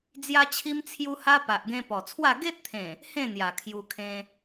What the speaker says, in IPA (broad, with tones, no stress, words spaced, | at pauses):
d͡zja˦t͡ɕʰi˦m t͡sʰju˦ha˦ pa˨ʔɡẽ˧ pɔ˨˩t͡sʰwa˥˧ ɡe˦t̚t̪ʰẽ˨˩ | hẽ˥˧n̪ja˨˩ kʰju˧kʰẽ˧